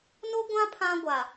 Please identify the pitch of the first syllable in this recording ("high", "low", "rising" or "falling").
high